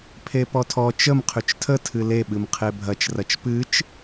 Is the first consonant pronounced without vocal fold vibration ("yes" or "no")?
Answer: yes